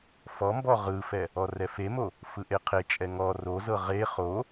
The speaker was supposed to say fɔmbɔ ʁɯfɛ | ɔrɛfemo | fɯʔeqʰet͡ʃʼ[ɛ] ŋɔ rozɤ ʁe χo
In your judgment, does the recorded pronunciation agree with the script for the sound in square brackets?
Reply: yes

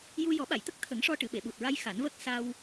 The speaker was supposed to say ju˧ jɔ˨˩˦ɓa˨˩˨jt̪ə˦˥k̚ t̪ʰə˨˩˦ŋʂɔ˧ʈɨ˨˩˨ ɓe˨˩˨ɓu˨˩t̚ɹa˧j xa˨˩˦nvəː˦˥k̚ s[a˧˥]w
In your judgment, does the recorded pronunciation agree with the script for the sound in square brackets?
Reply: no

